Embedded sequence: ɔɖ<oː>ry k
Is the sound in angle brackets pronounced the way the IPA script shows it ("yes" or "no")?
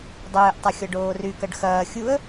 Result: yes